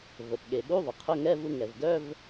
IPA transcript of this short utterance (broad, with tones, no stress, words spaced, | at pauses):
və˩p ɠe˩ɠu˧˥˧ ðˤə˩qʰʊ˧˥˧ŋɛ˧˥˧vu˧ ŋɛ˩vdœ˧˥˧v